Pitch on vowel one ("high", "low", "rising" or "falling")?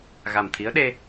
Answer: low